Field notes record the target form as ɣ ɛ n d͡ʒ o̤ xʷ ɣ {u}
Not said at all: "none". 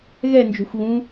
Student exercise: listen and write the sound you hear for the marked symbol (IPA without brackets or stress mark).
ũ